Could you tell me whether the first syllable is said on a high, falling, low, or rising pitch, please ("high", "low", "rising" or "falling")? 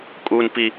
high